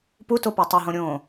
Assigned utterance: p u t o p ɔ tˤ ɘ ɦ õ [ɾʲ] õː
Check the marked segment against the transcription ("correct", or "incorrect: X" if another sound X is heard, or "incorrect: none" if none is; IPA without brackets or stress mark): correct